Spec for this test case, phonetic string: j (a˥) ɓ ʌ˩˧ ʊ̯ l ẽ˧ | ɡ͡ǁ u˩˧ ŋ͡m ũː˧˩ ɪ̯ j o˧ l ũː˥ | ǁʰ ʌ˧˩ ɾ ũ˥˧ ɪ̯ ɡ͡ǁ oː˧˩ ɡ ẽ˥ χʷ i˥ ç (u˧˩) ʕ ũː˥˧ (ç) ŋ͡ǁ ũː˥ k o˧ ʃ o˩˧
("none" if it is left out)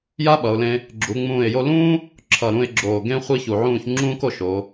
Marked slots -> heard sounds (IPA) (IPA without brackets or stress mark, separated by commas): a˥, u˧˩, ç